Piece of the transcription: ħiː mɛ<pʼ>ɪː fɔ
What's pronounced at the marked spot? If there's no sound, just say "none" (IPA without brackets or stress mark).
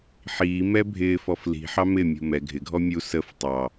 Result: bʱ